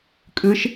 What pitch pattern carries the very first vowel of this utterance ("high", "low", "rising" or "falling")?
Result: rising